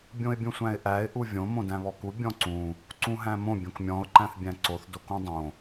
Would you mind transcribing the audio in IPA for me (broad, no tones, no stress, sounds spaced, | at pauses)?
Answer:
bʲ õ ɪ̯ bʲ ũ sʷ æ̃ ɪ̯ ʔ æ ɪ̯ ʔ u vʲ õ m õ d æ̃ β ɔ k u bʲ ɔ̃ ǀ ũ | ǀ ũ ɦ æ̃ m õ bʲ õ k mʲ ɔ̃ ʊ̯ ǃ æ̃ θ bʲ æ̃ ǀ o θ d o k ũ dˤ õ